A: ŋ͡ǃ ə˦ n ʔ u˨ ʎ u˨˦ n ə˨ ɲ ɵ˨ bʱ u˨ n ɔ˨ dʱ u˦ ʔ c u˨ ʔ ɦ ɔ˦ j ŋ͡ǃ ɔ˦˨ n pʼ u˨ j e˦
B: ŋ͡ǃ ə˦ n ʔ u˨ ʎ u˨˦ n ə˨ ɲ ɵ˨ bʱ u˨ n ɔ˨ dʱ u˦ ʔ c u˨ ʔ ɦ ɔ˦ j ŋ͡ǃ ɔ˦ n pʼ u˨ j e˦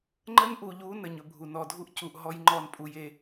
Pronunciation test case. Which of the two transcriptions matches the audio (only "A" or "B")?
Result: A